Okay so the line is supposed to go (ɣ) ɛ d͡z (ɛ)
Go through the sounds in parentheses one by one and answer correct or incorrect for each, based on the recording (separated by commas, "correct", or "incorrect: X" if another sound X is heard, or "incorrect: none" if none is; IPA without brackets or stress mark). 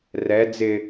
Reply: incorrect: r, incorrect: ɪ